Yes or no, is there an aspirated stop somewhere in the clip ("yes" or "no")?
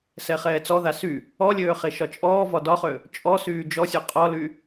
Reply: no